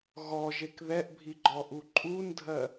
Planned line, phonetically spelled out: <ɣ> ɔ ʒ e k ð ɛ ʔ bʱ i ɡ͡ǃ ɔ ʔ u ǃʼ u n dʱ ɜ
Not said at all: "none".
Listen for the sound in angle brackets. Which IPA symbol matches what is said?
ɣ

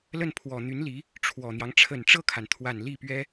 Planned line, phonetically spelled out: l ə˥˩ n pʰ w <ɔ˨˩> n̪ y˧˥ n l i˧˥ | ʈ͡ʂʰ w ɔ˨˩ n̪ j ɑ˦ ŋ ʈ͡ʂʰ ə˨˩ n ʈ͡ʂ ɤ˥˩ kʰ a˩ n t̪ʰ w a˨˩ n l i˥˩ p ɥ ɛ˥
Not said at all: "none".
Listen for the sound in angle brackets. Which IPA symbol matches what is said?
ɔ˨˩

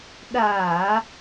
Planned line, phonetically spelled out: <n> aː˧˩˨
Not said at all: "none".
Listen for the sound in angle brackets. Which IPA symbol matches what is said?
ɗ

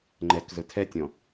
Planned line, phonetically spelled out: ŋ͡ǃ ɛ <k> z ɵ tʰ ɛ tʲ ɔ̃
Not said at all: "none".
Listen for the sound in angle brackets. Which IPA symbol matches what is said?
k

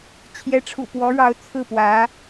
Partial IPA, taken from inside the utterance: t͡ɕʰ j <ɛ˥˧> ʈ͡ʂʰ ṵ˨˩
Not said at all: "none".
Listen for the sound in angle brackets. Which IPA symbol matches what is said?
ɛ˧˥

